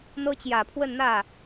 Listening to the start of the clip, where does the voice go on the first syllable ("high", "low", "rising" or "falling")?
high